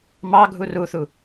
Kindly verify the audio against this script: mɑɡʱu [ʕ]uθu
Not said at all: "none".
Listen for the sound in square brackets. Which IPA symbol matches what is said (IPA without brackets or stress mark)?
r